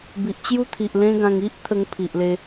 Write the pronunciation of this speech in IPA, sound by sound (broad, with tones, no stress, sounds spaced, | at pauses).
b i˨ ʔ t͡ɕ j u˦ t̪ʰ i˨ ʔ l ẽ˦ ɡ ã˧ ŋ i˦ ʔ t̪ʰ ə˦ ŋ pʰ i˨ ʔ l e˧